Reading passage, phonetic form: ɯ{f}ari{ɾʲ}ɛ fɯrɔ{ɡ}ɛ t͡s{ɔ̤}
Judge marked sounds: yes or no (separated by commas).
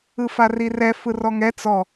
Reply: yes, no, no, no